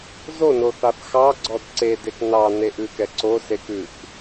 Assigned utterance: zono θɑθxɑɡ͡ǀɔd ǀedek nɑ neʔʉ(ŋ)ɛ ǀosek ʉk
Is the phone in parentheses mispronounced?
yes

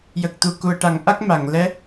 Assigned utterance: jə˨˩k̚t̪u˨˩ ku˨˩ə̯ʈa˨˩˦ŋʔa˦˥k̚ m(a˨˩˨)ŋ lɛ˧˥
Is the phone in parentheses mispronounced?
no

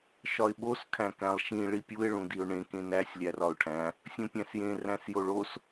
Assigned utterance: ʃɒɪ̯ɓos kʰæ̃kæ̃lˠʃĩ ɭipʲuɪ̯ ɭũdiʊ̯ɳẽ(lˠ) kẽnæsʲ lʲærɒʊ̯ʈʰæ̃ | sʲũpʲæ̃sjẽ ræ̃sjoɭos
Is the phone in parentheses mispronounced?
yes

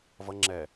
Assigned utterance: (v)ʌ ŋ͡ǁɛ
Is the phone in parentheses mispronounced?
no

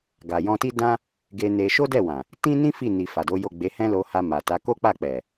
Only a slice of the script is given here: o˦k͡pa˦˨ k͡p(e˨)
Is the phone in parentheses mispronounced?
yes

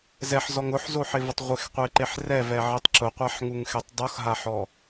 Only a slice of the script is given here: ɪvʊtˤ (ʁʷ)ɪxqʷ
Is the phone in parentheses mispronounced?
no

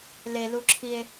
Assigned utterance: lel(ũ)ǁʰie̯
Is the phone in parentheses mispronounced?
yes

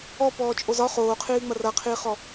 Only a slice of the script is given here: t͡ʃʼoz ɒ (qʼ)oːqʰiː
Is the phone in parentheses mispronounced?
yes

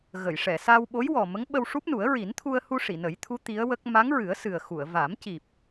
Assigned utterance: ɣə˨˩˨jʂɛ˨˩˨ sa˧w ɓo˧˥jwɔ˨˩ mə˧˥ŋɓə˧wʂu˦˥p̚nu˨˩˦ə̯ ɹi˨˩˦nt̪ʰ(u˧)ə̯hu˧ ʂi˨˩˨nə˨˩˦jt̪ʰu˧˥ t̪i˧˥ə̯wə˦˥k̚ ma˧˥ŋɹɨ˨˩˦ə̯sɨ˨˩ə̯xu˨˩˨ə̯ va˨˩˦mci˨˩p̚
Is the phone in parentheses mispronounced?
no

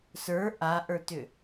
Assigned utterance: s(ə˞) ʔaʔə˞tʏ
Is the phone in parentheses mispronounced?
no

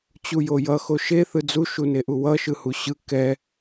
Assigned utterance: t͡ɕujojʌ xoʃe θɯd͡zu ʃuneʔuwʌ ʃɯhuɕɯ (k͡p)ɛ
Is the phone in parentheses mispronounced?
yes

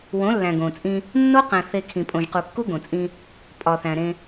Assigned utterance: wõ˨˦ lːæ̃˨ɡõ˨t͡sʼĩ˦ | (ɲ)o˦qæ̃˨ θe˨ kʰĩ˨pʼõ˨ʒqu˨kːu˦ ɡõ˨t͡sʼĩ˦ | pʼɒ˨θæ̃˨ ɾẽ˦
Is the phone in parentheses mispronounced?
yes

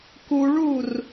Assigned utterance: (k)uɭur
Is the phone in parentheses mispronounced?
no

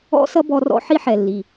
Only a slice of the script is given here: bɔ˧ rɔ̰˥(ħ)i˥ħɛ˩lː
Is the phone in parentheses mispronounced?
no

